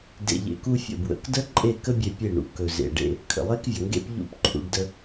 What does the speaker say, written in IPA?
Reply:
d ḛ˧ ʎ ḛ˧ k u˦ fʲ ə̰˦˨ b w ə̰˨˦ k d ə˦ ǃʼ e˦˨ k ə˦ bʲ e˧ pʲ e˦˨ ɳ ṵ˨ k ɵ˨ z ḛ˨ ɖ ḛ˧ | kʰ ə̰˨ lˠ e˦ k vʲ ə˨ ŋ ɡ ḛ˦ p ʎ ṵ˦ p ǃʰ ṵ˧ ɖ d ə˧

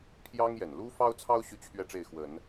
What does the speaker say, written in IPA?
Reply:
pʰ j ɑ˥ ŋ j ɛ˨˩ n l u˥ f ɑ˥ ʊ̯ t͡sʰ ɑ˥ ʊ̯ ɕ y˥ t͡ɕʰ ɥ ɛ˥˧ ʈ͡ʂ e˥˩ ɪ̯ x w ə˨˩˦ n

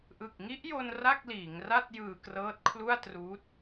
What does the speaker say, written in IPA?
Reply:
ʔ ɯ˨˩ k̚ ŋ i˦˥ ʔ j o˧ n r a˥˩ k̚ l iː˩˦ ŋ r a˥˩ t̚ j ɯː˧ k r ɤː˦˥ t̚ kʰ l u˥˩ a̯ t r uː˦˥ t̚

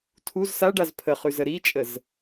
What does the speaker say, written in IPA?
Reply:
tʰ u z s a ɖ a z pʰ ə χ ʉ z ə ɾ i t͡ʃʼ ə z

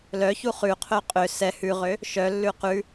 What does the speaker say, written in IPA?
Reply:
l œ ç u χ ʉ qʰ œ qʼ ø s ɛ h ʉ ʁ ø | ʃ œ lː ʉ q ʉ

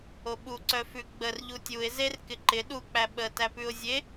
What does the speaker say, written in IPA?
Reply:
o ɓ u ǀ œ f ʉ ɡ͡b ə r ʎ u tʲ u ɪ̯ z e r k ɪ ǃ ɪ ɗ u k͡p æ ɓ ə t æ p ʉ ʊ̯ zʲ e

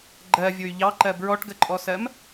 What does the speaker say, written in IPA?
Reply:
ɡ͡ǃ ɜ vʲ ʊ y̯ ʎ ɑ ǃ ɜ b ɹ ɔ ʈ ɡ ə ǃʼ ɔ s ɜ m

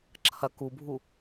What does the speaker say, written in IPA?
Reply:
ǁʰ ɐ k u bʱ u

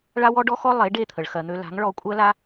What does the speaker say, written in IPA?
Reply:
ɭ a˥ w ɔ˥ ɖ ɔ˥ x ɔ˥ lˠ e˩˥ ɖ e˥˩ t̪ʰ ə˩ ɭ x ɜ˩ n̪ ø˧ l a̤˩˥ ŋ ɭ ɔ˧ kʷʼ ɜ˥ l a˥

